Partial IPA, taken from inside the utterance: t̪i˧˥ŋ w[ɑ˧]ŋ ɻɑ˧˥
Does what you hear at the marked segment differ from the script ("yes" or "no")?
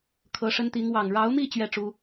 yes